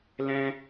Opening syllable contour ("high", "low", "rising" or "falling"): high